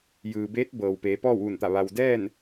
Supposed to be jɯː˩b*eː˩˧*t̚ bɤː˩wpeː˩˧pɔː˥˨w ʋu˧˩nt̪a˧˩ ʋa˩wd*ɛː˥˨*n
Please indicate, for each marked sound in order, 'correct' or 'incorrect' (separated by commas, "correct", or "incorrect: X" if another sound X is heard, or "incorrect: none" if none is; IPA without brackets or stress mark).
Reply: incorrect: eː˧˥, correct